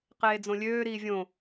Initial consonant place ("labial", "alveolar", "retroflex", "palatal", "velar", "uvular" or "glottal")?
uvular